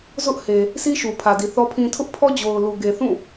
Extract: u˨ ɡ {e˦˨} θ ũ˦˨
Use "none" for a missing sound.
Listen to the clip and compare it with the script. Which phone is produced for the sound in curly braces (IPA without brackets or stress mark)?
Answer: e˨